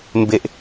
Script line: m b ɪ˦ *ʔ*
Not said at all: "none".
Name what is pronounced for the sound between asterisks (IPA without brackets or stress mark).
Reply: ʔ